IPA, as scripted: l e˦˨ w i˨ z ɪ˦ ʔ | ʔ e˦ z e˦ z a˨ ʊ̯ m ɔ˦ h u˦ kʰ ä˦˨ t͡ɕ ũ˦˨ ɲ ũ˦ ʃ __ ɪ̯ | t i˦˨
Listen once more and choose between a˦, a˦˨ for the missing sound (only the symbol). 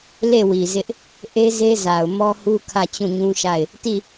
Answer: a˦˨